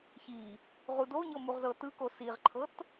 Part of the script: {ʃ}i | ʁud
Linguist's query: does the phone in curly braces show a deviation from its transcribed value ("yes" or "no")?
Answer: yes